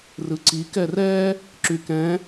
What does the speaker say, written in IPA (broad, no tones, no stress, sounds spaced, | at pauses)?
r ɯ ǀ i k ɛ r ɛ | ǁ y k ɛ̃